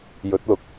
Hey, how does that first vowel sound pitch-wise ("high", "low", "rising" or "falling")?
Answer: rising